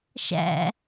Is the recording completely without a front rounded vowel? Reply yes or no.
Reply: yes